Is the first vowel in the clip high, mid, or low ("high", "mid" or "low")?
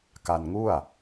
low